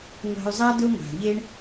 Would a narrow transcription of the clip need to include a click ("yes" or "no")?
no